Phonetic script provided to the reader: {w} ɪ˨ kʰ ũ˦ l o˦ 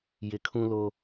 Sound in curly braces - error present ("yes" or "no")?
yes